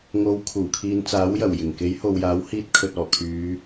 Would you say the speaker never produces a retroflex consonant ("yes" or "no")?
yes